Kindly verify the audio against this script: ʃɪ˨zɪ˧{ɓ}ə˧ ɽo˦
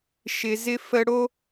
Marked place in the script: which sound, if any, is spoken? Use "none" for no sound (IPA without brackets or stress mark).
f